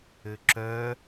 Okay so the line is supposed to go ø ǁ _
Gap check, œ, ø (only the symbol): œ